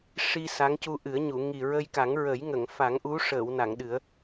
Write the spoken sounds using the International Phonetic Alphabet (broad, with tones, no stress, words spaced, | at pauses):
ʂi˧ sa˧˥ŋcu˧ʔɨ˨˩˦ə̯ɲu˨˩˨ ŋi˨˩ɹə˧jka˨˩˦ŋ ɹə˨˩˦j ŋə˨˩˨ŋ fa˨˩˦ŋʔu˧˥ʂəː˨˩˨wna˨˩˨ŋ ɗɨ˨˩˦ə̯